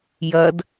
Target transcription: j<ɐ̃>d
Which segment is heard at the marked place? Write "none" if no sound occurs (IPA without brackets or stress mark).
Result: ɐ